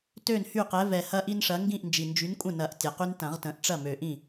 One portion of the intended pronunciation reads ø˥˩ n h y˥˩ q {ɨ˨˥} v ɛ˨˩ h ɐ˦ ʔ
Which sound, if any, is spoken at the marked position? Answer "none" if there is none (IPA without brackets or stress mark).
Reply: ɛ˨˥